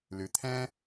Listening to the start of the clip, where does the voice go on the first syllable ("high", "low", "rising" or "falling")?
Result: low